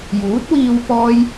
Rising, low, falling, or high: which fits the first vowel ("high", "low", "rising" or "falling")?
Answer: rising